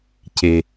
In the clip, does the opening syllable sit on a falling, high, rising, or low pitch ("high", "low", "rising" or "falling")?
low